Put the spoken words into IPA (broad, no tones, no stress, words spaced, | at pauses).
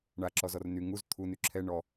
ɳaǁɔzɔr ny ŋuz t̪ʰuny ǁʰɛ ɳɔ